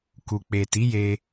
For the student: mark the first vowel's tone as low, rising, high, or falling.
low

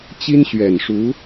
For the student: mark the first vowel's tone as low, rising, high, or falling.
high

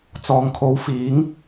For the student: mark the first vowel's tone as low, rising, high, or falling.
low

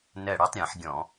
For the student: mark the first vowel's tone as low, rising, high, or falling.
falling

